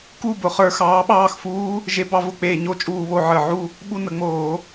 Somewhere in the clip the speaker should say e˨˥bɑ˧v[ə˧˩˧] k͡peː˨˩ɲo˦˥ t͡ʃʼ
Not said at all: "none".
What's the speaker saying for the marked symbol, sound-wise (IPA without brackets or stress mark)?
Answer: ʊ˧˩˧